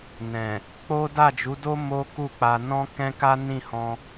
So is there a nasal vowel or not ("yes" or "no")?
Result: yes